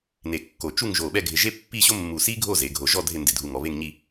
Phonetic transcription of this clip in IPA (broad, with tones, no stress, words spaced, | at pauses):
ne˧˩kːo˧˩ t͡ʃu˥˧ŋʒo˧˩ ɓɛ˥˧ɡʱɪ˧˩ʒe˥ pːi˥˧ɕo˥mːu˧˩si˥ ɡʱo˥˧ze˩˧ɡʱo˧˩ʒɔ˥˧ dʱɪ˥˧ndɪ˧˩dʱu˧ŋɔ˩˧ βe˥˧ŋ ɲi˥˧